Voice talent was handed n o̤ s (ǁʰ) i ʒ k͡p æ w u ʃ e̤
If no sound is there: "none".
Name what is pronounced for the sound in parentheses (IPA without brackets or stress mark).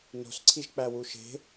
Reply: ǀʰ